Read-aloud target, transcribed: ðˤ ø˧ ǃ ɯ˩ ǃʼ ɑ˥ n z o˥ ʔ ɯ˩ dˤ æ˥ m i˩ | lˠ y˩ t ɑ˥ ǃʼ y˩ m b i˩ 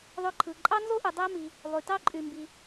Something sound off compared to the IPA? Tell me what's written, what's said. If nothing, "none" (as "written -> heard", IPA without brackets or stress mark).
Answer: ǃ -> ǃʰ